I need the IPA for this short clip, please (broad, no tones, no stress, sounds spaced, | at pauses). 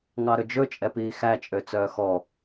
ŋ ɑ ɾ ɵ d͡ʒ ɵ t͡ʃʼ ɛ p iː x æ t͡ʃʼ ø t͡s œː x ɔ